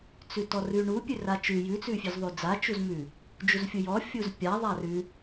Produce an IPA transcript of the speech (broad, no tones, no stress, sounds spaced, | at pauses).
t͡s ʉ t ɔ r ʉ ɳ u pʲ ʉ r a t͡ʃ ʉ j ʉ t͡s ʉ fʲ ʉ z ðˤ ʉ d͡z a t͡ʃ u z m ʉ | d͡ʒ u z fʲ u j ɔ fʲ u z pʲ a ðˤ a r ʉ